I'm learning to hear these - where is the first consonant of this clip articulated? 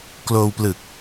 velum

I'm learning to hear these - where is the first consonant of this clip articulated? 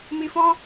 lips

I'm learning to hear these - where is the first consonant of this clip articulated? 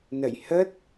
tongue tip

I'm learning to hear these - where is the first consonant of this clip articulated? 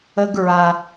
velum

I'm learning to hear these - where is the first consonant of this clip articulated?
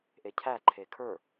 throat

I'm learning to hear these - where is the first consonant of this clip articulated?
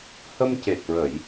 throat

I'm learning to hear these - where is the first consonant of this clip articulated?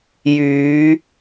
palate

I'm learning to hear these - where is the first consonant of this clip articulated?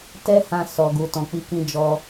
tongue tip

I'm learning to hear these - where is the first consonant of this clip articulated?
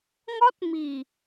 velum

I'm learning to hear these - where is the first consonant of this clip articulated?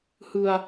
throat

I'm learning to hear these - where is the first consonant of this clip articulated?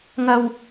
velum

